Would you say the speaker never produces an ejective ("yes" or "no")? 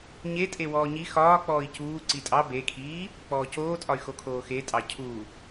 no